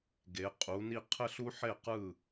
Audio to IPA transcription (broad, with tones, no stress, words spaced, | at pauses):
ɡe˩˥qʼu˩˥ni˥˧ qʰɘ˥˧ɬu˥ħe˥˩qɯ˥˩